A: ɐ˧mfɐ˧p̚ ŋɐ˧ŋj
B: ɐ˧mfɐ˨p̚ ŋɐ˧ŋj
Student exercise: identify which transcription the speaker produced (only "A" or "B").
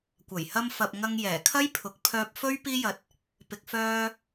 B